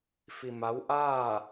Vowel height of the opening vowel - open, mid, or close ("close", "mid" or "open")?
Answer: close